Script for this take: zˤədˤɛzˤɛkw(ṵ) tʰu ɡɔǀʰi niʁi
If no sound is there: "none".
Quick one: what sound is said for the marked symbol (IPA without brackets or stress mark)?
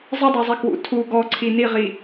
ṵ